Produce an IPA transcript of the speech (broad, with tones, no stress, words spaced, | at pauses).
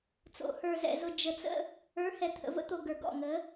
t͡so̰˨hə˞˨zɛ̰˨zʊ˨ d͡ʒə˨t͡sə̰˦ | ə˞˨˦hɛ˨ t̪ʰə̰˨və̰˦t̪o˨ ɡə˞˨ɡɔ̰˦˨ŋə˨˦